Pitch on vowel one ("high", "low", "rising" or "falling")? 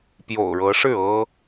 low